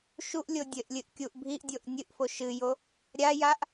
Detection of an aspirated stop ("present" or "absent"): absent